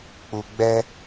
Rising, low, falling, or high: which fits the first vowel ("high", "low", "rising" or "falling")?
low